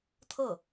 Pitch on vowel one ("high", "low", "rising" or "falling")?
falling